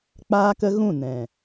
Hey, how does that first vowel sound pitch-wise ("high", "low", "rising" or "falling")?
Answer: high